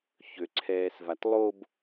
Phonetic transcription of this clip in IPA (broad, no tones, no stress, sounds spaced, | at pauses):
ç ø ǀʰ ɛː s v a t lˠ o b